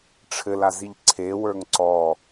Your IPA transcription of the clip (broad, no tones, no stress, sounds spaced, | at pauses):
ʈ͡ʂʰ ɘ l a z i ʎ ǀʰ e w ə˞ ŋ ǀ ɔ